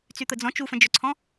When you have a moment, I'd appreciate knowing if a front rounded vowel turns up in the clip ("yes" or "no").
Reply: yes